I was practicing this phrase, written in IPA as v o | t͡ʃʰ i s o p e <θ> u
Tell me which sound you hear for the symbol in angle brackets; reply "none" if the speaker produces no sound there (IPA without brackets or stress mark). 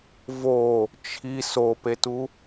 t